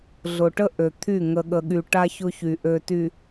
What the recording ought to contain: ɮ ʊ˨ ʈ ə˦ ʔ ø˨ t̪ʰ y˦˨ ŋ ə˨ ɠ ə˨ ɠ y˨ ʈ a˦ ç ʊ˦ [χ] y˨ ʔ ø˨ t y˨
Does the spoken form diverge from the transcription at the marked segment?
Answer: yes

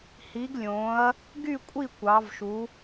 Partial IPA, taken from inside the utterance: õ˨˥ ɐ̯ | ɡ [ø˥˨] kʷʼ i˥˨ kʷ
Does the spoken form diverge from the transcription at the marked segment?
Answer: yes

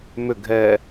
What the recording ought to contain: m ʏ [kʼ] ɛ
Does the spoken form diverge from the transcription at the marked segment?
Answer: yes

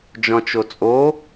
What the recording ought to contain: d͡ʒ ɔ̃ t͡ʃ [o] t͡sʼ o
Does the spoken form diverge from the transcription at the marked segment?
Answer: no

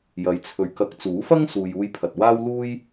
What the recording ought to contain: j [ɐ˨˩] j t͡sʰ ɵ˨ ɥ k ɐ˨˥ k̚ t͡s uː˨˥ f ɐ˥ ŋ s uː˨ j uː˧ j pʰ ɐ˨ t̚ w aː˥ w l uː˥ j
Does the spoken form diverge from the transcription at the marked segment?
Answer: yes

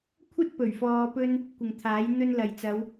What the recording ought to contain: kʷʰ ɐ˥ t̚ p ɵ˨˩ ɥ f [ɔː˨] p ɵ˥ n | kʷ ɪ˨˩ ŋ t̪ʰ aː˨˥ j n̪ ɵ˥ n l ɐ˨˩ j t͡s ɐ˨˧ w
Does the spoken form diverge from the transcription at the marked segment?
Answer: no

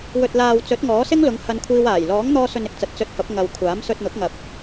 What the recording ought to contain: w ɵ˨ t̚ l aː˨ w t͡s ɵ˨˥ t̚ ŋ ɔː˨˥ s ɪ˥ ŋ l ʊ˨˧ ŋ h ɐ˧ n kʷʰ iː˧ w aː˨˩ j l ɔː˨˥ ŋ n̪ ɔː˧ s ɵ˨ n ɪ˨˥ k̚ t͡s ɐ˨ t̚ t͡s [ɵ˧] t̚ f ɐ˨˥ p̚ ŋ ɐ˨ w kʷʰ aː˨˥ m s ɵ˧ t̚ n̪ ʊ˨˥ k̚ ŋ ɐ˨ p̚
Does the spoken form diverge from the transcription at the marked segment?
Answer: no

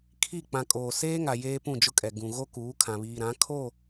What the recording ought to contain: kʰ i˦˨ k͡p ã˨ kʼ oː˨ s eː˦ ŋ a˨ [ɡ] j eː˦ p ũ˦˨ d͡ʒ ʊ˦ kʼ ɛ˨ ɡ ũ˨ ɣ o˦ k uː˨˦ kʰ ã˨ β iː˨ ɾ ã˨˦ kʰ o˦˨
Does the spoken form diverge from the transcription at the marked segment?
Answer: yes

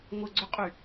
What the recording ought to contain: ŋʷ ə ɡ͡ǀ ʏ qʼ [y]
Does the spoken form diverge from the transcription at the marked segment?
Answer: no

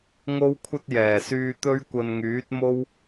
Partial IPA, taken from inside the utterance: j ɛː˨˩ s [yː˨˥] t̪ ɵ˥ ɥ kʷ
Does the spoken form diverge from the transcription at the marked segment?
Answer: yes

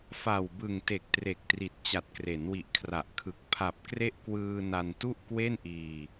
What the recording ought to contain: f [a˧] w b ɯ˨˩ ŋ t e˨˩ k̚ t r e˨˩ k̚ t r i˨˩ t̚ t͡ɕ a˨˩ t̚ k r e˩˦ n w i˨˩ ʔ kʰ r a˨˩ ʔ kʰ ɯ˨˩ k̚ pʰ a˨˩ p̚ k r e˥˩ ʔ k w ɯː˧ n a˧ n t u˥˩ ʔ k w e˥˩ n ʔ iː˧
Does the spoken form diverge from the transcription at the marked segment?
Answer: yes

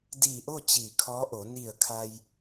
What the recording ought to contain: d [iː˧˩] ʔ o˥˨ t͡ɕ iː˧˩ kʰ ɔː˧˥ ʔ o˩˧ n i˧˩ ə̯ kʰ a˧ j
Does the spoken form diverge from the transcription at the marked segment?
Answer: no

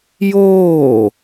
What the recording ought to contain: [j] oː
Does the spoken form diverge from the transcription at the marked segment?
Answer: no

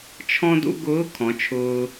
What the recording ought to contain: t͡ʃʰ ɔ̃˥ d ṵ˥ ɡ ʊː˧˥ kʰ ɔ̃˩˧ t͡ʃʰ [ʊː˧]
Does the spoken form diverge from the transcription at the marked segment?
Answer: no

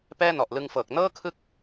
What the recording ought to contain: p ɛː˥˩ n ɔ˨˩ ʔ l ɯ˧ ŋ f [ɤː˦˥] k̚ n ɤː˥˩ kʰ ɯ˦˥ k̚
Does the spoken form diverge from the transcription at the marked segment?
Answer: yes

